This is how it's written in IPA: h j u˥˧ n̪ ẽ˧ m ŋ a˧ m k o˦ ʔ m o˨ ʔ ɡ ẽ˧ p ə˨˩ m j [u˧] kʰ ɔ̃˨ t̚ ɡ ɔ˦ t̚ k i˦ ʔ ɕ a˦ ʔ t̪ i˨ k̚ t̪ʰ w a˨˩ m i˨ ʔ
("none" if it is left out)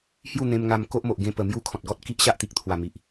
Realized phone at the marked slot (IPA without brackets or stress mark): u˦